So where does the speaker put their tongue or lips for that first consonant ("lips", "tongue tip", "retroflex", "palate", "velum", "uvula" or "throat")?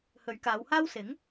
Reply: throat